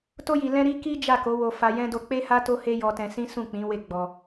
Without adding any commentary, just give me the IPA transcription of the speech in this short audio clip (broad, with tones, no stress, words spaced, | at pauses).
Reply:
to˧ji˨ lɛ̃˧ɾi˧ ki˦ d͡ʒa˦˨ko˨˦wo˧ fa˧jɛ̃˦ do˧k͡pe˦ha˦ to˦he˦jɔ˧tɛ̃˧ sĩ˦ sũ˦˨k͡pĩ˨˦we˦˨ ɡ͡bɔ˧